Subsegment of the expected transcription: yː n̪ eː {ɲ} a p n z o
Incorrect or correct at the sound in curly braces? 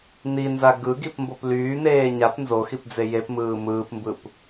correct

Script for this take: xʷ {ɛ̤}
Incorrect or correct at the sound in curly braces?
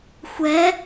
incorrect: ɛ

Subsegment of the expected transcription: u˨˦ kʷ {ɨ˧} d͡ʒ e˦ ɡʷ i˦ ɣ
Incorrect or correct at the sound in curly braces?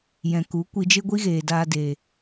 incorrect: i˧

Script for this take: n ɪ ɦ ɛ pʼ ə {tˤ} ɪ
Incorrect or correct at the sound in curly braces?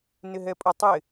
correct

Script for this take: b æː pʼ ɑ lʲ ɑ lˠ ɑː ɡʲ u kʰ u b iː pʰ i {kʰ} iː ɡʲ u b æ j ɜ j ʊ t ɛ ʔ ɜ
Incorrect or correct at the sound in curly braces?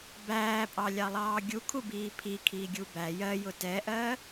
correct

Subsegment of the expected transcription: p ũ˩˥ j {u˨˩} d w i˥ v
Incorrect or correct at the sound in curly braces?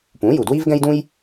correct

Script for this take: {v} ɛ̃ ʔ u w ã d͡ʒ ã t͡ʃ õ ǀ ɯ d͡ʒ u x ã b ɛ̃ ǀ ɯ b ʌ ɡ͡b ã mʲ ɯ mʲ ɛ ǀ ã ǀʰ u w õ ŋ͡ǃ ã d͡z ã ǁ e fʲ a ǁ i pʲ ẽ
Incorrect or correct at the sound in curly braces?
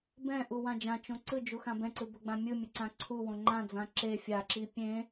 incorrect: b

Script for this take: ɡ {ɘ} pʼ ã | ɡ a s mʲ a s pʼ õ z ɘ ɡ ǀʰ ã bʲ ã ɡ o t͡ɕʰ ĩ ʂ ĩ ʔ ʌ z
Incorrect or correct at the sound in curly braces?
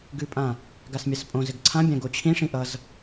incorrect: ʉ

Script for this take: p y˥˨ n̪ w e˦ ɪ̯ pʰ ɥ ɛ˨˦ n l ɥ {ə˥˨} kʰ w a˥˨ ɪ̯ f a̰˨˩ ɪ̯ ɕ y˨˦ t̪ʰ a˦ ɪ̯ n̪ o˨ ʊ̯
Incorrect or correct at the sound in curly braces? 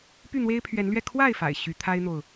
incorrect: ɛ˥˨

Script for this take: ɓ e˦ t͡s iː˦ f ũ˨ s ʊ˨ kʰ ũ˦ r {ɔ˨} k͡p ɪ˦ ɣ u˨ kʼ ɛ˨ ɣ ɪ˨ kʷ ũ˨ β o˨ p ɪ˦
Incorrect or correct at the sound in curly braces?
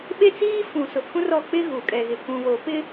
incorrect: ɔ˦˨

